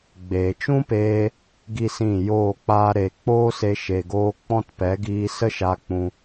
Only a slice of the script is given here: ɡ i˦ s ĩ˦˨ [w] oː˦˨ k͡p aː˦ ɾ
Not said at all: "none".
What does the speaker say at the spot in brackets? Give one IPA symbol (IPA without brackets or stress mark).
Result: j